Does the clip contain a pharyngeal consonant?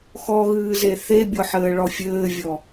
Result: yes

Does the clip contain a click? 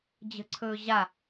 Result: yes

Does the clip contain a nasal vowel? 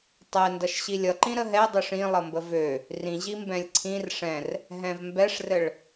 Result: yes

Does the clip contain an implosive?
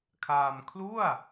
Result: no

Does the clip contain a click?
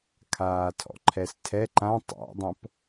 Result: yes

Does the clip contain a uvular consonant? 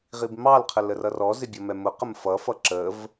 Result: yes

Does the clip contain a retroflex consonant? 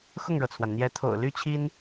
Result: yes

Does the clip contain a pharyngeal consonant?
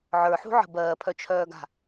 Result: yes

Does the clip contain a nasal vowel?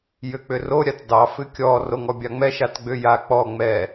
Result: no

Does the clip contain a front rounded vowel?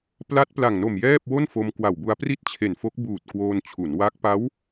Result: no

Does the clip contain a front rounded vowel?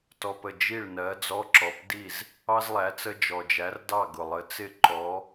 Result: no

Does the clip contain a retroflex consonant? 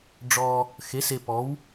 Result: yes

